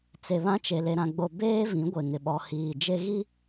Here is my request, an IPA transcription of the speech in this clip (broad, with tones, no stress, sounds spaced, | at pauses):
t͡s e˨ β ã˦ t͡ʃ e˨ l e˦ ɾ ã˦ ɡ͡b o˦ b eː˦ v ĩ˨˦ ɡʷ e˨ ŋ ɪ˨ ɓ ɔ˨ h iː˨ d͡ʒ e˦ ɣ i˦